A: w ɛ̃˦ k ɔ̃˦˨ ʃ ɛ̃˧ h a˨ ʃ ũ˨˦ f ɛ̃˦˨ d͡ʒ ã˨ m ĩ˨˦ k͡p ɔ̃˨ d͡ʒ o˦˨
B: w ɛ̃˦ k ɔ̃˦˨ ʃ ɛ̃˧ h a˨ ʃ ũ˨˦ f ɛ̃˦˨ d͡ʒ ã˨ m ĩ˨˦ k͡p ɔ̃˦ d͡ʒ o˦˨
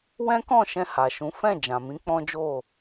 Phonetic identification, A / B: B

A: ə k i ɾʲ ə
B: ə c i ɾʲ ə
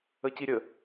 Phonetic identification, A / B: B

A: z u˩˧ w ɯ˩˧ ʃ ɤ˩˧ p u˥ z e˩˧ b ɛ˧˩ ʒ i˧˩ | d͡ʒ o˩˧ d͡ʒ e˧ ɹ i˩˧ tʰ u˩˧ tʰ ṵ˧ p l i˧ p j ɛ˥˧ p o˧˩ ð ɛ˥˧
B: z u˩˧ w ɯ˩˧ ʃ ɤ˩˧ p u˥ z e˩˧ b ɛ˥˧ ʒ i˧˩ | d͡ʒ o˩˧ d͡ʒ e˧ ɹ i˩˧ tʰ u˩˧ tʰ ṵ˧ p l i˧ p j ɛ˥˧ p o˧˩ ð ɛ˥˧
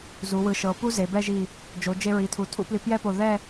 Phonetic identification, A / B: B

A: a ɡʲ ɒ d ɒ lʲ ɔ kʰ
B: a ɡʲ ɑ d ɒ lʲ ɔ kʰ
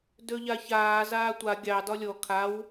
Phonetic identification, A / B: B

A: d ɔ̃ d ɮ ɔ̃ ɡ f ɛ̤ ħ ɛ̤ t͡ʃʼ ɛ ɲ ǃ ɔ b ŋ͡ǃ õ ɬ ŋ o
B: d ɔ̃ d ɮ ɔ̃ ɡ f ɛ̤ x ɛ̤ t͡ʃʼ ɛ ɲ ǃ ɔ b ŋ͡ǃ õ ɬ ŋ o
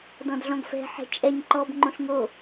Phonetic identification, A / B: A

